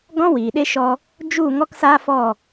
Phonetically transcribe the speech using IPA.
ɡɔ̃˦wiː˨ɗe˦ʃɔ˧ | d͡ʒu˦˨ ŋɔ˦ksaː˦fɔ˦˨

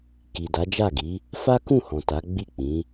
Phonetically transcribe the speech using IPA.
ki˨da˨˦d͡ʒa˦˨ɡi˨˦ | fa˦kũ˦˨hɔ̃˨ ta˨˦ ɡ͡bi˦˨k͡pĩ˨˦

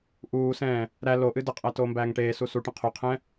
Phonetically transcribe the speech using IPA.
ʔuːsɛ̃ː | ɾæ loʔɨ dəqʼæ toːmbæːŋʈeːsu suʈə̃ qʰoqʰɛ̃

